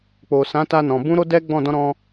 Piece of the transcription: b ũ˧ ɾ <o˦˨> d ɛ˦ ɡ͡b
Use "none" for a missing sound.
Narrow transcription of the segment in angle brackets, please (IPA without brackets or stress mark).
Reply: o˦